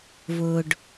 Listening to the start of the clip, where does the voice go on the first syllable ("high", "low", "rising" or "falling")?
low